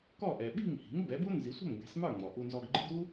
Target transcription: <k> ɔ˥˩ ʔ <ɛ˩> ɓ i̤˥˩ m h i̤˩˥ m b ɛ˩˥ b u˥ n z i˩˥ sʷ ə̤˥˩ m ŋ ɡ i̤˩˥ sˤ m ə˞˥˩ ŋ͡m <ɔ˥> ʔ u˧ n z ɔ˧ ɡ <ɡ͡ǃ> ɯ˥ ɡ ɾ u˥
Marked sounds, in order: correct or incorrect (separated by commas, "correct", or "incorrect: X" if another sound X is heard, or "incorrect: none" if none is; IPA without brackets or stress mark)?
correct, correct, incorrect: ɔ˩, correct